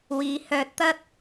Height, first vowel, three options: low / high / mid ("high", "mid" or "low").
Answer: high